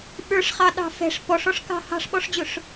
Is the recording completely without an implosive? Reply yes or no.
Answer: no